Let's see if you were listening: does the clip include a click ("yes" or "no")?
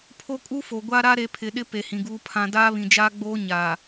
no